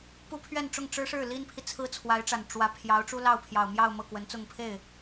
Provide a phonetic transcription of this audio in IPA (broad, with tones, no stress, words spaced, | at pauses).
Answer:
pu˥pʰɥɛ˥˧nʈ͡ʂʊ˥˩ŋ ʈ͡ʂɻ̩˥ʂɻ̩˥˩ li˥npʰi˨ t͡sʰɹ̩˥t͡sʰwa˧˥ɪ̯ʈ͡ʂa˨˩n ʈ͡ʂwä˧˥ pʰjɑ˧˥ʊ̯ʈ͡ʂu˥lɑ˥˩ʊ̯ pʰjɑ˨˩ʊ̯mjɑ˥˧ʊ̯ mɤ˥˩kwə˧˥nt͡sʊ˥˧ŋ pʰe˥˩ɪ̯